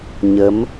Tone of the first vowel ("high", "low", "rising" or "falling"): rising